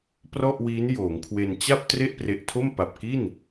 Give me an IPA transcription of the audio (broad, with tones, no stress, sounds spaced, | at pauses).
p r ɔ˥˩ ʔ w iː˦˥ n j oː˩˦ ŋ kʰ w e˧ n t͡ɕ a˥˩ p̚ t r e˥˩ ʔ p r e˨˩ ʔ tʰ o˥˩ m p a˨˩ p̚ k i˥˩ n